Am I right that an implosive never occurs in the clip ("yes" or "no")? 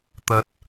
yes